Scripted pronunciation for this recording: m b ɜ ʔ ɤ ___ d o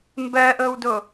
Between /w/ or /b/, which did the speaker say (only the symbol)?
w